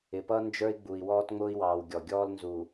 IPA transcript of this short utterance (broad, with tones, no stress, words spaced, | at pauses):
ɪ˨pʌ˦ nd͡ʒə˞˦i̯ɡ͡bu˨i̯ wɔː˦tŋ͡mʊː˦i̯wɑː˨w ɡʲɔ˨ ɡʲɔː˦lnzu˨